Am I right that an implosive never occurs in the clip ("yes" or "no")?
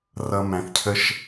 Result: yes